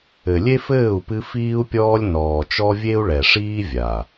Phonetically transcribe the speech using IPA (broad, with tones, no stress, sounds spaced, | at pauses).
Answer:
ɘ˨ lʲ e˦ f ɘː˦˨ u̯ p ɨ˧ f iː˦ u̯ pʲ ɔː˦ lʲ n ɔː˨ t͡ʃ ɔ˦ vʲ e˦ u̯ ɭ ɛ˨ ʂ iː˦ vʲ a˨